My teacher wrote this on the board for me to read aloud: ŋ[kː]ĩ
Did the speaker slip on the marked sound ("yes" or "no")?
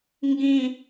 yes